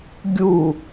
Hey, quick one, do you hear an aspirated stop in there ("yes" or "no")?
no